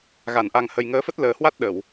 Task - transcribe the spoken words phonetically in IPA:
ɣa˧˩nʔa˨˩ŋhə˨˩j ŋəː˨˦fə˦˥t̚ləː˨˩hwa˦˥t̚ ɗə˧˩˨w

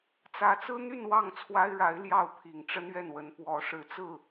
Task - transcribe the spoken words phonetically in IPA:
t͡sä˧˥t͡sɹ̩˥n̪y˥˧n wɑ˥˩ŋt͡sʰwa˥ɪ̯ɻa˧˥ɪ̯ ljɑ˥˩ʊ̯pʰi˨˩ŋʈ͡ʂə˥nɥɛ˥˩n wə˧˥npwɔ˧˥ʂɻ̩˨˩ t͡sɹ̩˥˩

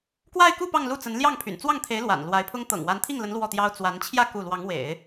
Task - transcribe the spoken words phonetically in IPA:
kwa˥˧ɪ̯ku˥˧ pɑ˥˧ŋlu˥˩t͡sə˧˥n ljɑ˥˩ŋpʰy̰˨˩n t͡swɑ˥˩ŋt̪ʰe˧˥ɪ̯ lwa̰˨˩nlwa˧˥ɪ̯pʰʊ˥ŋ t̪ɤ̰˨˩ŋwa˧˥nt̪ʰi˥˩ŋlə˧˥n lwɔ˥˩t̪jɑ˥ʊ̯ t͡swa˧˥n t͡ɕʰjä˥˧ ku˥˩ lwɑ˧˥ŋwḛ˨˩˦ɪ̯

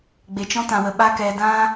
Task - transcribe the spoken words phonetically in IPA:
ɡ͡be˨t͡ʃɔ̃˦tã˨wə˨ ɓa˦ kɛ˧dã˦

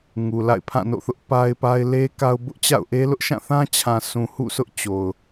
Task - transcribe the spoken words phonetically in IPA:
ŋu˨la̰˦˨ɪ̯pʰã˦˨ no̰˦˨θʊ˦ʔ pa˦ɪ̯pa˦ɪ̯ le˦ ka˦ʊ̯ bʊ˦ʔt͡ɕa̰˦˨ʊ̯ʔe˦ lʊ˦ʔʃã˦˨θã˦t͡ɕʰã˨ sũ˨hṵ˦˨sʰʊ˦ʔ t͡ɕo˨ʊ̯

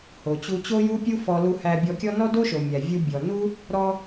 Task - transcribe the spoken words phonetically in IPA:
ho˩t͡ɕu˧ t͡ɕo˥ju˥pʲu˥ fɔ˧ lu˧hæ˧bʲɔ˧kʲɔ˥ nɔ˥do˥ʃo˩ mʲæ˩vʲu˧bʲɔ˩nu˥ | ɾɔ˥

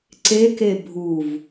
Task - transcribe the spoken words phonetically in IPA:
ǀeke bʱuv

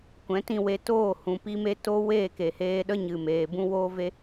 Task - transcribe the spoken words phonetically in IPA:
kʷɛ̃˨˦tĩ˦˨we˧ toː˦˨ hũ˨pi˧me˧ to˦ weː˦˨ke˨heː˧ɗə˦ ɲɨ˨meː˨bũ˦ woː˦ve˦

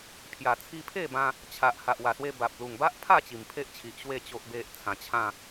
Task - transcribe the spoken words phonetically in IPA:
pʰja˨˩t͡sʰi˧pʰe˥˧bã˧ | t͡ɕʰa˨ʔ ha˨ʔwa˨˩swe˧ ba˨p̚ lu˨˩ŋba˦ʔpʰa˥˧ t͡ɕi˨˩mpʰe˦ʔt͡ɕʰi˨ʔɕwe˥˧ t͡ɕo˦ʔbe˦ʔ t͡sʰã˧ t͡ɕʰã˥˧

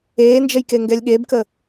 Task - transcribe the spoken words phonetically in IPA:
eːnd͡ʒəj keŋɡɛlʲɠebkə

